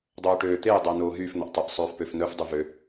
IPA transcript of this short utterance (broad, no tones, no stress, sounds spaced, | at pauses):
dˤ oː ʈ øː t̪ e j dˤ əː n oː ɦ yː f n̪ ə ʔ tˤ ə ʔ sˤ øː f p ø f n œ f dˤ y v ø